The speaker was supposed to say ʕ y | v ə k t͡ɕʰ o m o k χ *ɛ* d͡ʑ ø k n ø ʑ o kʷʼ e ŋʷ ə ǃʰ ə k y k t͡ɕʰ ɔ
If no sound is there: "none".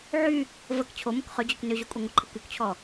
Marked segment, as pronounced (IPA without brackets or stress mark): ø